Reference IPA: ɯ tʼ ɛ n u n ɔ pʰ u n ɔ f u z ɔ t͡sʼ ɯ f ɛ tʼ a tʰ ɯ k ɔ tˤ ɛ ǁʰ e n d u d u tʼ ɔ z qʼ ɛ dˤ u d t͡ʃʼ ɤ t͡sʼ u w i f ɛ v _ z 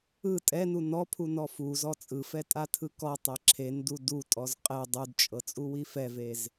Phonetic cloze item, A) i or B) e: B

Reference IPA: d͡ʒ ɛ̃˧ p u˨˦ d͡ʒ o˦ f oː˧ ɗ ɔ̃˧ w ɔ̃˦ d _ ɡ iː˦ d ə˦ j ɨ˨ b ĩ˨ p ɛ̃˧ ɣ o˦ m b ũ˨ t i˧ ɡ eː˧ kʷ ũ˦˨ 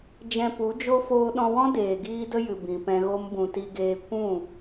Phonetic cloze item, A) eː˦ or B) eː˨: B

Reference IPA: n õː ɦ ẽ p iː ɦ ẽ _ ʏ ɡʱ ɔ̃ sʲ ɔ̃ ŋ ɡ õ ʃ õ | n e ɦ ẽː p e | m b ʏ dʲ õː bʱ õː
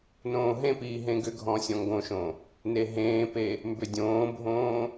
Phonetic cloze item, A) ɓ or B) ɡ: B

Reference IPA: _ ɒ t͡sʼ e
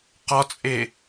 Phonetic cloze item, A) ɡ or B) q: B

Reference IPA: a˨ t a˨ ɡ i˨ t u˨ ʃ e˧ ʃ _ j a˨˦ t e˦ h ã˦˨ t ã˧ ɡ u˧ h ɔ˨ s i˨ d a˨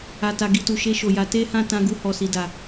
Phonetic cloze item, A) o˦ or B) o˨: B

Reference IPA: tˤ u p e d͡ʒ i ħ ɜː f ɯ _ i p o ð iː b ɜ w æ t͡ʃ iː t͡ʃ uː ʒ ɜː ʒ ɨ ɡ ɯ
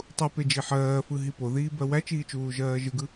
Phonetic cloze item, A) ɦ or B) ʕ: A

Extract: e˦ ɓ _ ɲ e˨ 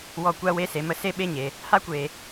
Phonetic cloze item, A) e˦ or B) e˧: A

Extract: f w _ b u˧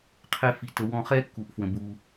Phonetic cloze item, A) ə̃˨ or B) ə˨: A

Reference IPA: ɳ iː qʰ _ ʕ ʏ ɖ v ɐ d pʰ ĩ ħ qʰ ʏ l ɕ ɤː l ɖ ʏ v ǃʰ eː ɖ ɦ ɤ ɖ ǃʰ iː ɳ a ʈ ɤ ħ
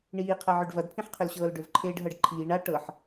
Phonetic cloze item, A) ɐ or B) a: A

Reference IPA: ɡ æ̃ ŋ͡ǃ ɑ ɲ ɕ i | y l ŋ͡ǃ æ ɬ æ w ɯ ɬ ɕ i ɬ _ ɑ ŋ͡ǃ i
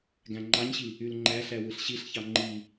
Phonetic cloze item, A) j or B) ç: B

